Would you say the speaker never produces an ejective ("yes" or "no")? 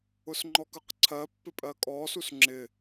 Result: no